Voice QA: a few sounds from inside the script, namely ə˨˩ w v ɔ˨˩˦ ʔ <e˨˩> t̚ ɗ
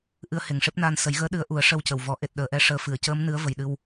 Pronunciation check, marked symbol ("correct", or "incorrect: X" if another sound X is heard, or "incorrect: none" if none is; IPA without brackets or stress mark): correct